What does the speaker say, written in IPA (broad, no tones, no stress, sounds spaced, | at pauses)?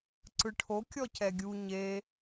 ǀ ɯ ʈʰ o kʲ ɔ c ɛ ɡʲ u ɲ e